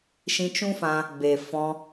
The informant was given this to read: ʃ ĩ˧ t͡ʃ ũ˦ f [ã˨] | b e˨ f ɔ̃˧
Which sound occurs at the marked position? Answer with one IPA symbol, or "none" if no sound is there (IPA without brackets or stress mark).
ã˧